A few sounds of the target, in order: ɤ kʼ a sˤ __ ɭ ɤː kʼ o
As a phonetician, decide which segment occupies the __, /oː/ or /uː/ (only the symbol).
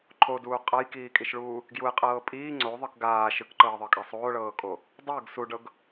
oː